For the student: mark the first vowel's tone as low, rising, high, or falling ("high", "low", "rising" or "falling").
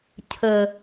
low